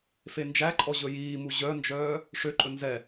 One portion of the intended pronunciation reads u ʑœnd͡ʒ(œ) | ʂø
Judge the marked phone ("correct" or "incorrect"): incorrect